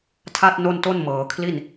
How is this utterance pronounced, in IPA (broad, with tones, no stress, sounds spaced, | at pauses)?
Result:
tʰ a˥˩ t̚ n o˥˩ n t o˥˩ n m ɤː˩˦ kʰ l i˥˩ n